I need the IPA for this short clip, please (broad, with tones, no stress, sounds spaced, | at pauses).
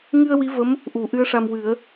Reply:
ŋ ɨ˧ ə̯ w i˧˥ v ə˧˥ m | ʔ u˨˩˦ ʔ ɨ˧˥ ə̯ ʂ a˧ m w ɨ˨˩˦ ə̯